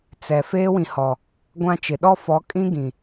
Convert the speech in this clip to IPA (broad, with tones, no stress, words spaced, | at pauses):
t͡sɛ˨ feː˦wĩ˨hɔ˨ | ɡʷã˦t͡ʃɪ˨ ɗɔ˦fɔ˨˦kʼĩ˦ ɡĩ˨